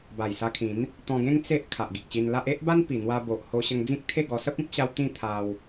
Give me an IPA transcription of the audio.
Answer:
b a˨˩ j s a˧ kʰ ĩ˨˦ n | t̪ ɔ̃˧ ɡ ẽ˦ ŋ t͡s e˦ ʔ kʰ a˨ ʔ ɡ i˨ k̚ ɕ i˧ n l a˦ ʔ e˦ ʔ b a˦ n p i˨˩ n̪ w a˧ b o˨ ʔ h o˧ ɕ ə˧ ŋ d͡z ĩ˦ k̚ t̪ʰ e˥˧ ɡ ɔ˧ s ə˦ p̚ ĩ˦ k̚ ɕ a˧ w t̪ ĩ˥˧ t̪ʰ a˧ w

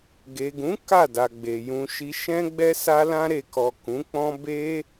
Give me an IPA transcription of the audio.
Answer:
ɡ e˨ ɡ ũ˨˦ k a˦˨ d a˨ ɡ͡b e˨ j ũ˨ ʃ i˧ ʃ ɛ̃˦ ɡ͡b ɛ˦ s a˧ l ã˧ ɾ e˨ k ɔ˨ k ũ˨˦ k͡p ɔ̃˦ b e˦

